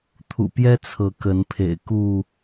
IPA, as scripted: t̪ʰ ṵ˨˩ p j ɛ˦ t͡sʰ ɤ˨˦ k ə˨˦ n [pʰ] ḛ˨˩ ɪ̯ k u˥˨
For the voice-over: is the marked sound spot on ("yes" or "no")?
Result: yes